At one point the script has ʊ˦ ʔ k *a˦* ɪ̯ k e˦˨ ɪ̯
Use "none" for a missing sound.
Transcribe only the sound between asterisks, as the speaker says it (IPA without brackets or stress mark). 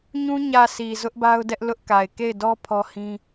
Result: a˨